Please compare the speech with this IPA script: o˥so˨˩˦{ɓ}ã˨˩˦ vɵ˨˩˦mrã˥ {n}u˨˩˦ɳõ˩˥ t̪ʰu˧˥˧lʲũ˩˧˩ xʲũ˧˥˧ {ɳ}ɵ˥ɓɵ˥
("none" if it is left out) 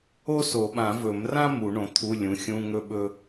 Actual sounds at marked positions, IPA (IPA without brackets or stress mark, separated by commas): ɓ, m, ŋ